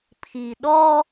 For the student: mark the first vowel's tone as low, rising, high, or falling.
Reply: low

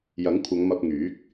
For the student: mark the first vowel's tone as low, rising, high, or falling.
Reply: rising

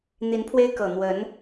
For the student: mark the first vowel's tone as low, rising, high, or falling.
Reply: rising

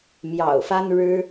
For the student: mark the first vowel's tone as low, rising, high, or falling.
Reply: low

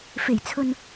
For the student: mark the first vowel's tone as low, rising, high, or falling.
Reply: low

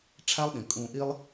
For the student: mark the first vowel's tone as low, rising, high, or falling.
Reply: high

